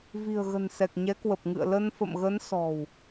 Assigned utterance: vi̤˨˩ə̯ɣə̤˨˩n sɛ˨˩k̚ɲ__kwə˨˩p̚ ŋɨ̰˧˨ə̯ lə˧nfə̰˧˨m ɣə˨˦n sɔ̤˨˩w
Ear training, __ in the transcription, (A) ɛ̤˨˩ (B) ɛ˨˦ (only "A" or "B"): B